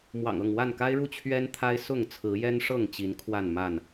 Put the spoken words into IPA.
mwɑ̰˨˩ŋɤ˥˨ŋ wa˥˨nka˦ɪ̯ɻu˥˨ t͡ɕʰɥɛ˦nt̪ʰa˦ɪ̯ sʊ˥˨ŋt͡sʰɹ̩˨˦jɛ˦nʂɤ˥˨ŋ t͡ɕi˨˦nkʰwa˥˨nma˥˨n

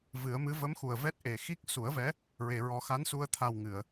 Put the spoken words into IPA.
vɨ˨˩˦ə̯mɨ˧˥ və˧˥m xu˨˩ə̯vɛ˦˥t̚ʔe˨˩ xi˦˥k̚ su˨˩˦ə̯vɛ˧˥ | ɹe˨˩˨ɹɔ˨˩˦xa˧˥nsu˧ə̯ t̪ʰa˨˩w ŋɨ˨˩˨ə̯

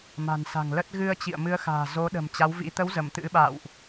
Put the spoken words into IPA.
ma̤˨˩nsa̤˨˩ŋlə˦˥t̚ ɣɨ˧ə̯t͡ɕḭ˧˨ə̯mɨ˨˦ə̯xa̤ː˨˩ zo˨˦ ɗə̤˨˩mt͡ɕa˨˦wvḭ˧˥ t̪ə˨˦w zə˧˩mt̪ɨ̰˧˥ɓa̰˧˨wʔ

